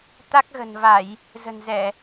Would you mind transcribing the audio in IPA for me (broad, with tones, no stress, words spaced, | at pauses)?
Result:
t̪a˦˥k̚ɣə̤˨˩nva˧˩˨j | zə̤˨˩nzɛ˧˩˨